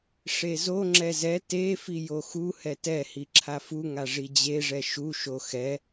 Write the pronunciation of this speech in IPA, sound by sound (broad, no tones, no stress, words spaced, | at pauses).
ʂezo ŋ͡ǁɛzɛ te fijoxu hɛtɛ hiǁʰafu ŋaʐid͡ʑe ʐɛʃu ʃoxɛ